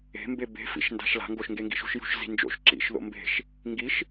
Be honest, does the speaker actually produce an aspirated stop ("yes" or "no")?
no